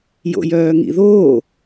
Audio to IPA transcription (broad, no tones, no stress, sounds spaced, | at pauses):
j o̰ j œː ŋ ḭ ð oː